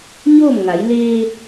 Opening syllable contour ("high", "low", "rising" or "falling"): falling